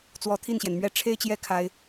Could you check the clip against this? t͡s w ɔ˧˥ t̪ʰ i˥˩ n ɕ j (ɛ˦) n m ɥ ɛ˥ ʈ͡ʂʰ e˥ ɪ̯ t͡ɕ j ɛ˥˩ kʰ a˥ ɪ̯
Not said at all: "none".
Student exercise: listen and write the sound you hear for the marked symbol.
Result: ɛ˩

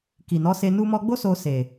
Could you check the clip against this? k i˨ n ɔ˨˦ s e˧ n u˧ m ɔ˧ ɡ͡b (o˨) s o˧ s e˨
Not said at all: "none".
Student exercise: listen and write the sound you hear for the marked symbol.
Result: o˦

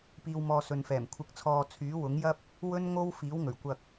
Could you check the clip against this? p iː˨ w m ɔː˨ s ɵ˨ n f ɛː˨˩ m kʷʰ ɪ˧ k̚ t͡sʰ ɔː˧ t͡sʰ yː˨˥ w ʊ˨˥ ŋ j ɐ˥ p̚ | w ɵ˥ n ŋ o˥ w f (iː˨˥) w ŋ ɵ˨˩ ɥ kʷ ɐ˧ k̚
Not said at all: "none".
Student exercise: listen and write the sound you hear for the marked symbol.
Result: iː˨˥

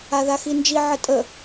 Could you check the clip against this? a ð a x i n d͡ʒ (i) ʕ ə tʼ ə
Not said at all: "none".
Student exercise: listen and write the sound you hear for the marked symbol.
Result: i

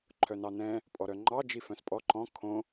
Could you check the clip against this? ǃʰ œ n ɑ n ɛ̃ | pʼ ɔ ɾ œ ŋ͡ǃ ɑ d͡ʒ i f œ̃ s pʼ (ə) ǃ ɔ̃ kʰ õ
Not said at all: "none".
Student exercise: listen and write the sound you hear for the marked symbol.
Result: ɔ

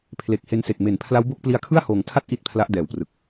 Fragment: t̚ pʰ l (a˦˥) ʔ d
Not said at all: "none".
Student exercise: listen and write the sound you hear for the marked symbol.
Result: a˦˥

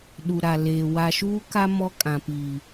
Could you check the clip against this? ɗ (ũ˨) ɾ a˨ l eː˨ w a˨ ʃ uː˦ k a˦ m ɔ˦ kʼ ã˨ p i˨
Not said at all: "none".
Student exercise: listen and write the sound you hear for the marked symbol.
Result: u˨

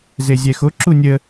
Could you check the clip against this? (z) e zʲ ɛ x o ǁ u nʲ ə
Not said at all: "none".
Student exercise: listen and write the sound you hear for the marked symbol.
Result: z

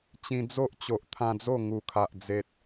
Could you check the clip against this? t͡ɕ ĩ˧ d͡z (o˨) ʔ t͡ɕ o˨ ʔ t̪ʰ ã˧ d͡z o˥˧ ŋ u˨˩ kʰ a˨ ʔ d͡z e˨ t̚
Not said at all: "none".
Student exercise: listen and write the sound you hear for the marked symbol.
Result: o˦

